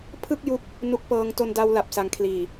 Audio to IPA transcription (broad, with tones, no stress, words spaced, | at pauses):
pʰɯ˥˩k̚ju˦˥k̚ | nu˦˥k̚pɤː˧ŋ to˧nda˧w la˨˩p̚sa˨˩ŋkʰliː˨˩